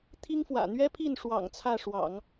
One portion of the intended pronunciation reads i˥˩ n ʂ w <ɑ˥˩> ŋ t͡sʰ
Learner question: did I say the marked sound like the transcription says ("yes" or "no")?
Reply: no